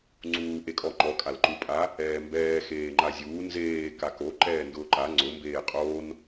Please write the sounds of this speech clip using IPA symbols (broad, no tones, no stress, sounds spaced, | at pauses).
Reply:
ŋ͡ǀ uː ʔ e kʼ ɔ ŋ͡ǃ ɔ kʼ a l ǃ u pʼ a | ɛː m b ɛː x eː ŋ͡ǃ a zʲ uː n z eː k a k o ǃ ɛː n d ʊː ǃ a ŋ͡ǀ ʊ m b eː qʼ oː n